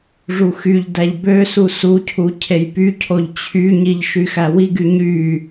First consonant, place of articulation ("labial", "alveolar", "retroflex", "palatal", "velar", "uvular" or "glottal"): retroflex